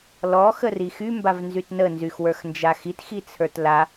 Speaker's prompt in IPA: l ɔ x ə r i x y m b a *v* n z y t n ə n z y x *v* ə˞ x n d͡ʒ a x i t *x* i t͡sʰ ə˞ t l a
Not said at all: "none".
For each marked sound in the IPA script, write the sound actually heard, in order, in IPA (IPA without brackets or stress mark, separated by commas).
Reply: v, w, x